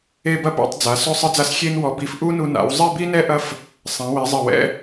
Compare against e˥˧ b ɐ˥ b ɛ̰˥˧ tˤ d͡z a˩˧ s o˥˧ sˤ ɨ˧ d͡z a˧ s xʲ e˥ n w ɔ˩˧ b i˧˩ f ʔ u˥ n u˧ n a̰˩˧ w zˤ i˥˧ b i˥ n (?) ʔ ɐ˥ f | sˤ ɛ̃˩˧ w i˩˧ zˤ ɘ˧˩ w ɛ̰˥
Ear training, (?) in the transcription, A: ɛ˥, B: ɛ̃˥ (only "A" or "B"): A